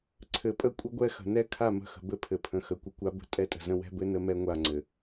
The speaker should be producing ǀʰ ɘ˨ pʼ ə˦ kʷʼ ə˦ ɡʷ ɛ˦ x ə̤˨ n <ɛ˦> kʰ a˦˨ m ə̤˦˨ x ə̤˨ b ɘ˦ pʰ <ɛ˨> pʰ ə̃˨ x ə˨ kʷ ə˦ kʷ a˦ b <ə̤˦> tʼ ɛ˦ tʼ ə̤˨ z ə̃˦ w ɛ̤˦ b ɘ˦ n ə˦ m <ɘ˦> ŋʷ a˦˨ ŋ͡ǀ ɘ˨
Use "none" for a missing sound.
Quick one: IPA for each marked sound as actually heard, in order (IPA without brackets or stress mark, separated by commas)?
ɛ˦, ɘ˨, ə̤˦, ɛ˦